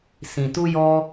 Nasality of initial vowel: nasal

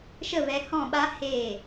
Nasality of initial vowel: oral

